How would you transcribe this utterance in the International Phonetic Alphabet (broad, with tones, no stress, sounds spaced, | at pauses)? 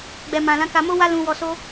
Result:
ɡ͡b ɛ˨ m ã˨ l ã˨˦ k a˧ m o˦ w a˦ l ũ˧ w ɔ˧ s o˦